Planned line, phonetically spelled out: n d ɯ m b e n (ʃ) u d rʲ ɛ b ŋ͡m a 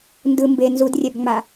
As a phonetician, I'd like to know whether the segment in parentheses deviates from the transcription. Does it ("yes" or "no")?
yes